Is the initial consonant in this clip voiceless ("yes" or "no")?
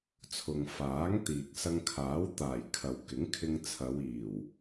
yes